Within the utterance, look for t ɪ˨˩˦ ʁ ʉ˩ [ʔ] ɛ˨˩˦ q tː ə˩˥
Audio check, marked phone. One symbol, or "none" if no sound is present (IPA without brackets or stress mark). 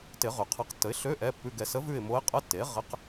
qʰ